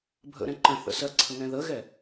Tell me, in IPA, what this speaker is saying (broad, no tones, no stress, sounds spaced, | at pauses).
bʱ ə̰ ɾ ɛ̃ ǃ ə̃ θ ə̰ s ɜ ǀʰ ə ŋ ɛ̃ ð ə ɣ ɛ